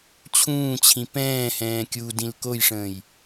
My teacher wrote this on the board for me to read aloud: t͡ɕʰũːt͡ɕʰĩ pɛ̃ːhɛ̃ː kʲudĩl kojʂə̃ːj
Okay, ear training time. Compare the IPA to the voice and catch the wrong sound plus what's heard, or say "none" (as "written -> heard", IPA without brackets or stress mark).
none